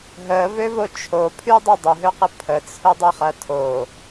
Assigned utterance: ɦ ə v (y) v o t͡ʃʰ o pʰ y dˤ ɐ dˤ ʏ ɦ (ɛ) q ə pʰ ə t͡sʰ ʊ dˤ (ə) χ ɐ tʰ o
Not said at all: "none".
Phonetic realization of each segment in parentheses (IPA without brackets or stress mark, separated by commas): ø, ø, ə